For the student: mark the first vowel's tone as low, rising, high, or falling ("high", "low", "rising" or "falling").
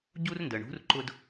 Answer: high